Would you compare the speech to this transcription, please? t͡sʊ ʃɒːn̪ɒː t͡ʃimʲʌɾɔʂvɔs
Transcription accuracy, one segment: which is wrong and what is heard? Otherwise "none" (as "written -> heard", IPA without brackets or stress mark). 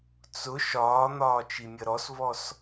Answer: ʂ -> s